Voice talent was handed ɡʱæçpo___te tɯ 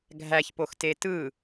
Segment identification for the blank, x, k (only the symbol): x